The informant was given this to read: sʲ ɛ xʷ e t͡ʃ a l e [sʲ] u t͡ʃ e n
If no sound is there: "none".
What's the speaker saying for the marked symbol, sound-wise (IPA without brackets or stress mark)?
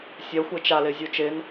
zʲ